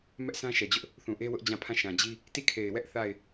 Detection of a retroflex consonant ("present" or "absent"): absent